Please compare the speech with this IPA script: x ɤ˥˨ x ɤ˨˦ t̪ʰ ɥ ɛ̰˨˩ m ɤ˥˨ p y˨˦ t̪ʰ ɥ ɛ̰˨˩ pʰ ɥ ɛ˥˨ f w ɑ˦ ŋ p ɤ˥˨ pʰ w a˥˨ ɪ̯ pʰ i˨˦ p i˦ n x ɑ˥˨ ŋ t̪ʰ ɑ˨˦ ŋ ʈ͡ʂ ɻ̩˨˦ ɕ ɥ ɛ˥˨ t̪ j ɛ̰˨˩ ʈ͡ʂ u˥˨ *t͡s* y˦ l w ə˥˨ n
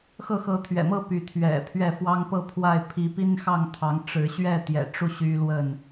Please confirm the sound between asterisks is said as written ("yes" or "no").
no